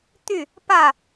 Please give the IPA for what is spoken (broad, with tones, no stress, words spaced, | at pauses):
t̪y˥˨ | pä˥˨